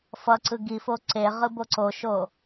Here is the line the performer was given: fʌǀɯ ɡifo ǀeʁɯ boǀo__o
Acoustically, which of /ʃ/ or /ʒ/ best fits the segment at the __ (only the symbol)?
ʃ